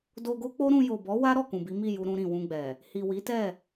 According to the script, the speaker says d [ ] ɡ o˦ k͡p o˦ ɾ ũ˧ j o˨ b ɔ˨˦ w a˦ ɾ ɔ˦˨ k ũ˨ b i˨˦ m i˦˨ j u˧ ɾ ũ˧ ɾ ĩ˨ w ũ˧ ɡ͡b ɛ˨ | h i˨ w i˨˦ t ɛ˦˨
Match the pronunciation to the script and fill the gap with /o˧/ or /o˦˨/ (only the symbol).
o˧